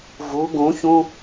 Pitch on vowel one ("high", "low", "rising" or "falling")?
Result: rising